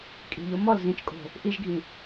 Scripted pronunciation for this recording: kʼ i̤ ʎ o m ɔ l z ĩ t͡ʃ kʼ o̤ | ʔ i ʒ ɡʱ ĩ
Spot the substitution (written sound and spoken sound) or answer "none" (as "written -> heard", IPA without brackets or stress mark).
none